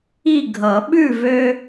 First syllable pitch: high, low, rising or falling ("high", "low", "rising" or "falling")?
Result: falling